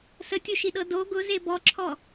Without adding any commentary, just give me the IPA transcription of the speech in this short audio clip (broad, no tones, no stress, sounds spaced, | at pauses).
s ə tʲ o ʃ i ɗ ɤ d o ɡ ʊ z e b ɔ ǁʰ ɔ